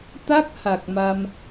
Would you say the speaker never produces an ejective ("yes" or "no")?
yes